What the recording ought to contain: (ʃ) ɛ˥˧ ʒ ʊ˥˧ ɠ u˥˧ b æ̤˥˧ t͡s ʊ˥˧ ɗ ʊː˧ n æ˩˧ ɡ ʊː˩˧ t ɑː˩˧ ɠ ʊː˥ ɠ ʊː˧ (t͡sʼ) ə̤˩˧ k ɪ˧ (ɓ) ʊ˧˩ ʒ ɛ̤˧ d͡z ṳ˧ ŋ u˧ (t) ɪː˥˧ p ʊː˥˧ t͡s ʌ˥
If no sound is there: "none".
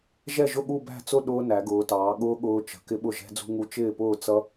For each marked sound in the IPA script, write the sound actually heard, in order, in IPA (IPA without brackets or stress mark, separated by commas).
ʒ, t͡ʃ, ɓ, t͡ʃ